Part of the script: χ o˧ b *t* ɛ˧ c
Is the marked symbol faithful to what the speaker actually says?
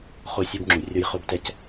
yes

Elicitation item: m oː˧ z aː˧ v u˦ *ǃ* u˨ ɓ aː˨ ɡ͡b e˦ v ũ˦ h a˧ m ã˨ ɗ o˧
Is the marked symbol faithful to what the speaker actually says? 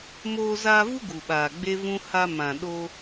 no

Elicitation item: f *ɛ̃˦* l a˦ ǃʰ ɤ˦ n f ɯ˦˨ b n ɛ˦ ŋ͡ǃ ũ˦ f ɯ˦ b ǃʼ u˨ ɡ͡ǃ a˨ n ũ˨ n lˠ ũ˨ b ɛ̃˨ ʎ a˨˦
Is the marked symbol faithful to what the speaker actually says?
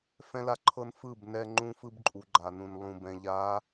yes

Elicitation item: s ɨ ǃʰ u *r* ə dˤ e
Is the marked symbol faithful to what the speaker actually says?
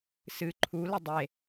no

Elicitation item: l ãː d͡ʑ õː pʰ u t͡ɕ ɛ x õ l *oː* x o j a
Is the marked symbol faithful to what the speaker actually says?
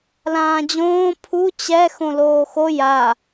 yes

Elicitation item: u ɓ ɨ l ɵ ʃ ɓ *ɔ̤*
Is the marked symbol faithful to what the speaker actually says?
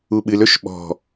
yes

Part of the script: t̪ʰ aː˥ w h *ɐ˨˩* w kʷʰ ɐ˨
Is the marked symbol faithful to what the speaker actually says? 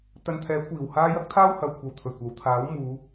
no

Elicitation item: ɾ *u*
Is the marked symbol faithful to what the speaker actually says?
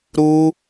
yes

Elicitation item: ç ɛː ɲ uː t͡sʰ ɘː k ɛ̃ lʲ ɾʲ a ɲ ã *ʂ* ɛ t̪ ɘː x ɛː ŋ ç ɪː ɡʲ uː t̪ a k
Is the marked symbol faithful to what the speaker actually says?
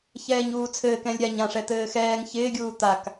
yes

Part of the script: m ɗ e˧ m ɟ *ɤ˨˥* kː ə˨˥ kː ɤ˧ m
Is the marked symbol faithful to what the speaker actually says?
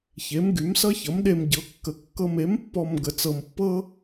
yes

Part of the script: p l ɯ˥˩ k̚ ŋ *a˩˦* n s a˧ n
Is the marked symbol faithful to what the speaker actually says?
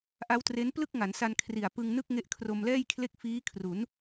yes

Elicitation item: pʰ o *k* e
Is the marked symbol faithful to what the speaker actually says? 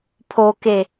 yes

